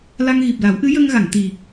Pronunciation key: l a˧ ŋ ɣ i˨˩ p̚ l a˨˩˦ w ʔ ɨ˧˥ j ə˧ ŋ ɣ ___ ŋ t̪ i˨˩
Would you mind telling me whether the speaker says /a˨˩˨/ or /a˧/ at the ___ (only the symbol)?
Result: a˨˩˨